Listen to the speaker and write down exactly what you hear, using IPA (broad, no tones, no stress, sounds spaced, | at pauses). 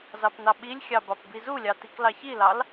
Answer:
z ɑ p n ɑ ɓ i lʲ xʲ ɑ b ɑ p b i z u lʲ ɑ t i k l ɑ ç i l ɑ l